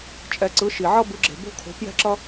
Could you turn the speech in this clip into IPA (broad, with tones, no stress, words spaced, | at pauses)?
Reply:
t͡ʃʼɛ˩ǀɯ˩˧ ʃi˩ʕʌ˧ bɯ˩˧ɡ͡ǁe̤˩ bo̤˧kʰo̤˩˧pjɛ̤˧ǁʌ˧